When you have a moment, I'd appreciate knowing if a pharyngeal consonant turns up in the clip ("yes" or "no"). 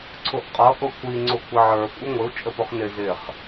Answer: yes